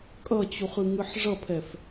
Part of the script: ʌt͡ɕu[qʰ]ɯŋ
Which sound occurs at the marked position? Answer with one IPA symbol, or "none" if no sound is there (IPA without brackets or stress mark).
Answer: χ